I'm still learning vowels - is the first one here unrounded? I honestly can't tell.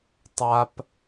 yes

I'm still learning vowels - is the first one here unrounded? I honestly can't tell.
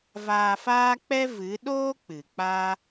yes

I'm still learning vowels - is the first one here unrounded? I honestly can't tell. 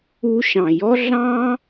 no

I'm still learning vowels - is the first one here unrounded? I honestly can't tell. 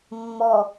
no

